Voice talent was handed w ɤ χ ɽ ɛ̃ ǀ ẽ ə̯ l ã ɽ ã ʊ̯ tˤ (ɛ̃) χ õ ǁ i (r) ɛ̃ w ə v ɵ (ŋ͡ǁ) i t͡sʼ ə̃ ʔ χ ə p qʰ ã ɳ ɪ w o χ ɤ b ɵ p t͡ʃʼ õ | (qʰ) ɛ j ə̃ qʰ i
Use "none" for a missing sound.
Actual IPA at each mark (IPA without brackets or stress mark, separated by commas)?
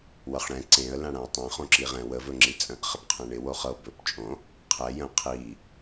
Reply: ɛ̃, ʁ, ŋ͡ǁ, qʰ